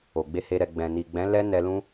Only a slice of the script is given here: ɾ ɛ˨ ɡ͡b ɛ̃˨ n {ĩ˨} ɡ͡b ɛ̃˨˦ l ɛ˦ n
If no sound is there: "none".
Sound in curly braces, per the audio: i˨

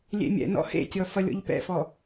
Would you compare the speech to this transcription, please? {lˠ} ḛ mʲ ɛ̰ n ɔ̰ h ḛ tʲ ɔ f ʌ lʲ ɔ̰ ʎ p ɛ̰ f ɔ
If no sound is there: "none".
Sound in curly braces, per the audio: lʲ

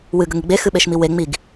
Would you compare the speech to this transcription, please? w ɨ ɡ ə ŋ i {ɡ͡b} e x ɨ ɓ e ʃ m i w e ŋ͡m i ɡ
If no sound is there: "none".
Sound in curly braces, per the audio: ɡ͡b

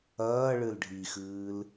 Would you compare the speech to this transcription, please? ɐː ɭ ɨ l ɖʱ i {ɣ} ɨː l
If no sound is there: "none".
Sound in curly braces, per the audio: x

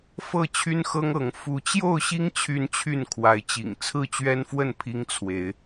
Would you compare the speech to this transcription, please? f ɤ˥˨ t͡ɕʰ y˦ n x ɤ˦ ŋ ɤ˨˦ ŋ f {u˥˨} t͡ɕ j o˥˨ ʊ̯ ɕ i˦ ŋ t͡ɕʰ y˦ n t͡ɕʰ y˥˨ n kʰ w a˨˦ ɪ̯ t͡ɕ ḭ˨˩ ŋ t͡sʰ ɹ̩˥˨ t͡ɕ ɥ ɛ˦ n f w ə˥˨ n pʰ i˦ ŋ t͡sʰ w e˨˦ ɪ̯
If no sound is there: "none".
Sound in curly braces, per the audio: u˨˦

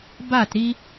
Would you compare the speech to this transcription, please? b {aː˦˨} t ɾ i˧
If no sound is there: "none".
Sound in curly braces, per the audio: aː˦˨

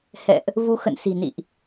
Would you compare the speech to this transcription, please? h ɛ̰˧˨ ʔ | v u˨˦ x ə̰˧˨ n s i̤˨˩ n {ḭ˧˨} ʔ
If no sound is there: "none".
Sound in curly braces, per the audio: ḭ˧˨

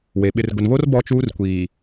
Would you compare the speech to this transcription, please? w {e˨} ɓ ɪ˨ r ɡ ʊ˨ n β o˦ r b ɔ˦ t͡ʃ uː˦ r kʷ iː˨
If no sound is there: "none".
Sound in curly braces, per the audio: e˨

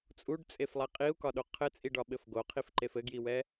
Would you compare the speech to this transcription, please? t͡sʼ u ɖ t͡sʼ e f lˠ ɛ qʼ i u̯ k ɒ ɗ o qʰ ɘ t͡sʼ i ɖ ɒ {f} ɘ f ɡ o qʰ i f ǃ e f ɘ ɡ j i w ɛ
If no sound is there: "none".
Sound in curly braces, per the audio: ɓ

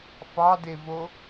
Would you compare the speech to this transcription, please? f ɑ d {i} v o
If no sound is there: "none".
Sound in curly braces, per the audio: e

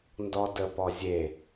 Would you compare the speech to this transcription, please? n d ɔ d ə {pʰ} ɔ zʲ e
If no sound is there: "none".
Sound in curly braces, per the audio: p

